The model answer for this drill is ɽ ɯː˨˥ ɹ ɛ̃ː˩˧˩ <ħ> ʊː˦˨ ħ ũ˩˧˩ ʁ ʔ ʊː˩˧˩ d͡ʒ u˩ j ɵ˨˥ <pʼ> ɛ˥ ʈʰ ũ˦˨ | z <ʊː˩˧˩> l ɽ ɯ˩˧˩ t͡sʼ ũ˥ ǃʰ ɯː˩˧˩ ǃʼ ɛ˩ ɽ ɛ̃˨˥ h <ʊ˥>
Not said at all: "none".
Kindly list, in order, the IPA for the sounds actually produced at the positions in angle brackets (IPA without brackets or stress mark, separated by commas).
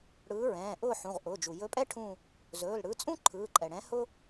ʔ, pʼ, ɵː˩˧˩, ʊ˥